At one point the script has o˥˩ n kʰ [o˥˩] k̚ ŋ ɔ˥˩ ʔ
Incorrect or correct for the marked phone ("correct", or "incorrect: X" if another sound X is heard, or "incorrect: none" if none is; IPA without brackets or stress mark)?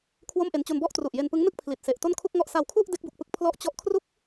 incorrect: u˥˩